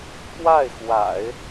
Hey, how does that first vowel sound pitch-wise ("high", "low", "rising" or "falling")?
falling